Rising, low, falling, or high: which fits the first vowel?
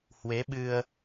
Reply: rising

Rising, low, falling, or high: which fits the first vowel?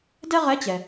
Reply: high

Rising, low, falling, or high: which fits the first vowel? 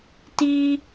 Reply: high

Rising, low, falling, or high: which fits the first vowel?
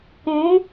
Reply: rising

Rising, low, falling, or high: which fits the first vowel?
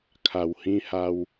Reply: low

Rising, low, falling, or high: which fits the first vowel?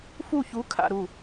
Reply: falling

